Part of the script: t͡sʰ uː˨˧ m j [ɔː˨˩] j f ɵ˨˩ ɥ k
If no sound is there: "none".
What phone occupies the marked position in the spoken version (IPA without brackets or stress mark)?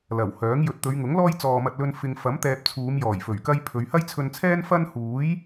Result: ɔː˨˩